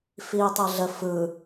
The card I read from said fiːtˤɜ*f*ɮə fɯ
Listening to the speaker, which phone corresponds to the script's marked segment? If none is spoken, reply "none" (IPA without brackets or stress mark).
none